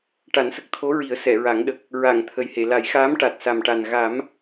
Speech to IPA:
ʈa˨˩˦nsə˨˩k̚t̪ʰo˧˥ɹi˨˩˦ə̯ sɛ˨˩˨ɹa˨˩˦ŋɗə˨˩k̚ | ɹa˨˩˨ŋ t̪ʰə˨˩jhe˨˩˨la˨˩˦jxaː˧˥m ʈa˨˩t̚sa˨˩mʈa˨˩n ɣa˨˩˦m

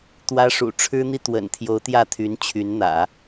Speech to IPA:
t̪wä˥ʂṵ˨˩ ʈ͡ʂʰɻ̩˥n̪i˥ t̪wə̰˨˩nt̪ʰjo˧˥ʊ̯ t̪jä˥˩t̪ʰy˧˥nt͡ɕʰy˧˥nn̪ä̰˨˩˦

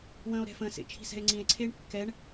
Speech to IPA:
wə̃ːo̯ɾɛ̤fə̃ːsḛ t͡ʃʰi̤sɛ̤e̯ŋ͡ǀĩe̯ǀʰeːɳ kːɛɳ

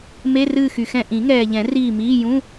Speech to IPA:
me˧˥˧rɨː˦˨xy˨xɛ̃˦˨ ʔĩ˨˩˦ŋɛː˨ʎɛ̃˨˩˦ riː˦˨miː˧˥˧ jũ˧˥˧

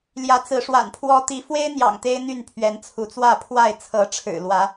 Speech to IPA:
ljä˨˦t͡sɹ̩˨˦ʂwa̰˨˩npʰwɔ˦ t̪i˨˦fwe˦ɪ̯n̪jɑ̰˨˩ŋ t̪e˦ɪ̯n̪y˥˨npʰɥɛ˨˦n t͡sʰu˨˦t͡swä˥˨pʰwa˥˨ɪ̯ t͡sʰɤ˨˦ʈ͡ʂʰɻ̩˨˩lwä˨˦

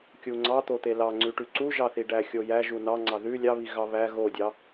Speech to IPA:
kʲuŋ͡ǀɑ t̪ot̪elɑŋ͡ǀʉ ʈʉǀuʒɑ θiɖæxʲojæ ʒunɑŋ͡ǀɑ ðʉ lʲɑβi ɣɑβæ ɣodʲɑ

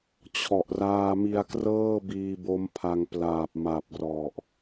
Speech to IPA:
t͡ɕʰɔ˨˩ʔraː˧mi˧a̯krɤː˥˩ biː˧bo˦˥mpʰa˧ŋplaː˨˩p̚ ma˨˩p̚rɔ˨˩ʔ

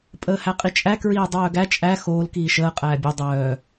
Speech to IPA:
pʼəːhæqʼit͡ʃʼæ kɹiːdˤœːɡæ t͡ʃʼæ xoːl kiːʃəː qʼæːbʲo dˤœː

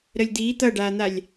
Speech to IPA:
ɾəlʲd̪iː t̪ʌɖaːn̪alʲ

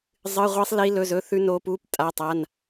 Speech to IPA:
zˤɨ˧˥˧ʁʷi˦˥sˤ li˦˥lɵ˧˥˧zɵ˧˥˧θʉ˦˥ no˦˥pu˧˥˧p tʼa˧˥˧tˤa˧˥˧n

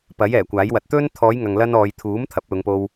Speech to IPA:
pɐ˨˥jɛː˨˩kʷaː˨˥jwɐ˨˥t̚ t̪ɵ˥n t̪ʰɔː˨˧jŋɐ˨ŋ lɐ˧nɔː˨j t̪ʰuː˨˥m t̪ʰɐ˨˥p̚lʊ˨˧ŋpo˧w

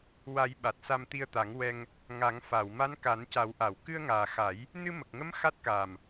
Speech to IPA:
wa˨˩˦j ɓa˨˩t̚sa˧mt̪i˧ə̯t̪a˨˩˦ŋ wɛ˧ŋ | ŋa˨˩˦ŋ fa˨˩˨w ma˧˥nka˨˩˦nca˨˩˦wʔa˨˩˨w kɨ˧ə̯ŋaː˨˩xa˨˩˦j | nɨ˧mə˨˩k̚ŋə˧˥m xa˦˥t̚kaː˨˩m

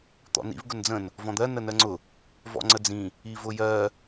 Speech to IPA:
t̪ɔ̰nḭv ɡʊnd͡zə̃n | vɔ̃d̪ɜ nənɜŋ͡ǀʊ | vɔ̰ŋ͡ǀəd͡zĩ | ivʊjɜ

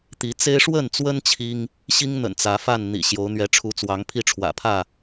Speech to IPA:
t̪i˨˦t͡se˦ɪ̯ ʂwə˥˨nt͡swə˦n t͡ɕʰi˦ŋ | ɕi˦ŋn̪ə̰˨˩n t͡sä˨˦fa˥˨n n̪ḭ˨˩ɕjo˨˦ʊ̯ n̪ɥɛ˨˦ʈ͡ʂʰu˨˦t͡swɑ˨˦ŋ pʰi˦ʈ͡ʂʰwä̰˨˩pʰä˥˨

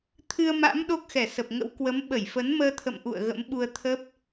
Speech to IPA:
t̪ʰɨ˧ə̯ma̰˧˥m ɗo˦˥k̚xɛ˧˩sə˨˩p̚ŋə̰˧˥w kwə˨˦m ɓə˧˩jfə˨˦nməː˧t̪ʰə̰˧˨m ʔṵ˧˨ə̯ ɣə̰˧˥mɓu˧ə̯t̪ʰə˦˥p̚

